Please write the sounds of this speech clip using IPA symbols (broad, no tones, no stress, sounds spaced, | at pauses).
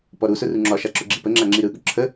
p ɔ ɾ u s ʊ r u ŋ͡ǁ ɒ ʃ a ǁ ʊ ɡ͡ǁ i p ə ŋ͡ǁ a ŋ͡ǁ i ɾ ɯ ɠ ʊ ǁʰ ə